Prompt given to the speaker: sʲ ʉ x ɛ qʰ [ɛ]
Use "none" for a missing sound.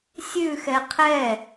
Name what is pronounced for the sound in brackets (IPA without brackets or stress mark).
ɛ